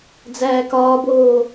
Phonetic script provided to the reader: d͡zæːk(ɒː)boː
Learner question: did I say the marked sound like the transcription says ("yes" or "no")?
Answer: yes